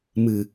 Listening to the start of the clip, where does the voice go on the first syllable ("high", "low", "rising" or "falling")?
low